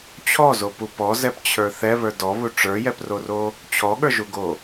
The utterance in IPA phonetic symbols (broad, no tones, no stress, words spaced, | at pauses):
t͡ɕʰɔzopu pɔzɛpt͡ɕʰə˞ θɛβə˞ dɔβu ʈ͡ʂə˞jɛproro | t͡ɕʰɔɠə˞ʒuɡo